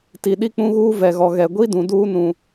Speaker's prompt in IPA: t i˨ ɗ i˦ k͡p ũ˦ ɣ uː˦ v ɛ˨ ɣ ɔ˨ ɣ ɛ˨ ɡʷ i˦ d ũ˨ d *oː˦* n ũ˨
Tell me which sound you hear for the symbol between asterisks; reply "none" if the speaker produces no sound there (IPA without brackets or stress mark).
uː˦